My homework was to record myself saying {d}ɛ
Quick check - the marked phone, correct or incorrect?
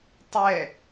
incorrect